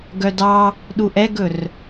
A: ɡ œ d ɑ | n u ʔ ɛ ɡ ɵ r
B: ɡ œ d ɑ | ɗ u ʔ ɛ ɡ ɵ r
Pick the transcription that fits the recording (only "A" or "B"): B